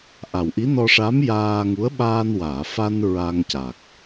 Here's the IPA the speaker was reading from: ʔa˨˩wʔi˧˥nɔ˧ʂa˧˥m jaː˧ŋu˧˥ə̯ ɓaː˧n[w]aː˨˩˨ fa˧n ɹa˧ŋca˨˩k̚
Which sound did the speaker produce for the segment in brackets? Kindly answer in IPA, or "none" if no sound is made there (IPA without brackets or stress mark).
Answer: w